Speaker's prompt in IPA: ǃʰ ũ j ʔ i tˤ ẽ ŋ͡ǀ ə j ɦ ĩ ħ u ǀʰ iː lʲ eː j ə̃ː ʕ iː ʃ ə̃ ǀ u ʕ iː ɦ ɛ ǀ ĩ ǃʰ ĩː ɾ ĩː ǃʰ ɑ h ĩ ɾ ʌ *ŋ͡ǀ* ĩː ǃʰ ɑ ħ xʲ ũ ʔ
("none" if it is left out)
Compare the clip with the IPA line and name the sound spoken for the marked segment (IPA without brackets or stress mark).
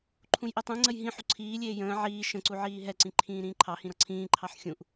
ǀʰ